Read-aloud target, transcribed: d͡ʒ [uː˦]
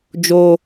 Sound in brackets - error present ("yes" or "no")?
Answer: yes